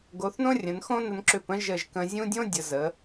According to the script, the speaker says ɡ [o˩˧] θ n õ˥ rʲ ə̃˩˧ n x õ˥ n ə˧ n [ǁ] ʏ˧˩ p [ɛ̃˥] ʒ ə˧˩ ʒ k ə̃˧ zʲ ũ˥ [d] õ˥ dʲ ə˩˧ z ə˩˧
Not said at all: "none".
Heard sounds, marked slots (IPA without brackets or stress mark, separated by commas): o˩˧, ǁ, ə̃˥, dʲ